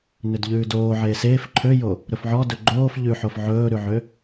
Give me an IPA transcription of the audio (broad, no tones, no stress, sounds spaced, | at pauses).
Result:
n ø d ʎ ʉː d oː ʕ eː s eː f ǃʰ ø j o | ɾ ɵ f ʕ ɔ d ɵ ɡ͡ǃ oː f ʎ ʉ ħ o f ʕ ɵː ɾ ʉ ʕ ø